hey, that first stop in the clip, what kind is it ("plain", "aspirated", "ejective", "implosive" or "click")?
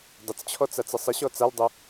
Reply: plain